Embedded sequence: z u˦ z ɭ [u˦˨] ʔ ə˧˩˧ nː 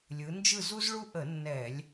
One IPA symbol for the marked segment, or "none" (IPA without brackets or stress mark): u˦